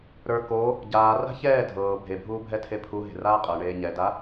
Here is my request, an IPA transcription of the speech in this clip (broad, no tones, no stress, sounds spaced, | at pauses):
ɾ ə˞ k oː | ɟ aː r a̤ ç ɛː dʱ ɤː bʱ e bʱ uː bʱ ɛ tʰ e pʰ u ɦ e̤ r aː qʼ ɤ ɳ eː ɲ ɛ d a